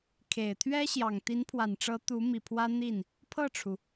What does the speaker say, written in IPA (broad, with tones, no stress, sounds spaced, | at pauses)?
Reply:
kʰ e˨˩ ɪ̯ t̪ʰ ɥ ɛ˥ ɕ j ɑ˨˩ ŋ t̪ i˧˥ n pʰ w a˨˩ n ʈ͡ʂ ɤ˧˥ t̪ u˧˥ m i˨˩ pʰ w ä˥ n̪ i˥˩ n | pʰ ɤ˥˩ ʈ͡ʂʰ u˩